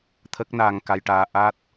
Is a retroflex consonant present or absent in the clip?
present